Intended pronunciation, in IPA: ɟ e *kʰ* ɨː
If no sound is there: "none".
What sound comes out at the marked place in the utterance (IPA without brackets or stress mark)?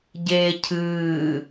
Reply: cʰ